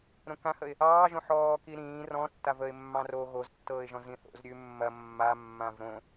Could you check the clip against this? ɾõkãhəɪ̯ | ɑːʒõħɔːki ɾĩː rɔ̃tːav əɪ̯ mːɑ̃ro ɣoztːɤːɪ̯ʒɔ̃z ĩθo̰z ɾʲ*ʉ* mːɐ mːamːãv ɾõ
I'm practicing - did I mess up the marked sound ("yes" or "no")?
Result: no